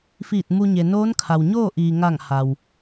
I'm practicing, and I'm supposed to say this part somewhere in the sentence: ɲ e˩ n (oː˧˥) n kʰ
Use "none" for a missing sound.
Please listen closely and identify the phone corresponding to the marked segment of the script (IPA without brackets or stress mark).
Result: oː˧˥